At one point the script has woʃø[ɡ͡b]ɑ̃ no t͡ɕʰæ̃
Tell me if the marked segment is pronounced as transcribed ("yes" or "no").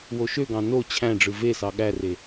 no